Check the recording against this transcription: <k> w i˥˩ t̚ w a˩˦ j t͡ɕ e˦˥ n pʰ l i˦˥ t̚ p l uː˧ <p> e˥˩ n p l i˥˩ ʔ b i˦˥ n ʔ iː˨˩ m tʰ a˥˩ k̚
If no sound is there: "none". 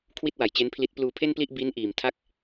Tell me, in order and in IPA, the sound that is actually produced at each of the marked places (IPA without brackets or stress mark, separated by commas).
kʰ, pʰ